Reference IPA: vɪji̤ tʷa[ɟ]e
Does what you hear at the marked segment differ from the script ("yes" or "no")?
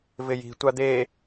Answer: yes